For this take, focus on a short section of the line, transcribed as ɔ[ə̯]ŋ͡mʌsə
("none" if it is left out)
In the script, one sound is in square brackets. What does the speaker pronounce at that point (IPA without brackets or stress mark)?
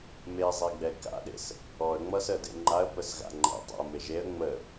ə̯